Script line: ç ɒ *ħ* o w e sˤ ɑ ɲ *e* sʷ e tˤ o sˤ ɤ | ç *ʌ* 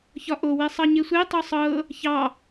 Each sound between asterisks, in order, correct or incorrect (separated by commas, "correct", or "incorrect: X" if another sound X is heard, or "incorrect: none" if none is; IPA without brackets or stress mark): incorrect: ʔ, correct, incorrect: ɑ